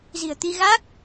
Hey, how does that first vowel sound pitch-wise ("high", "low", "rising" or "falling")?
low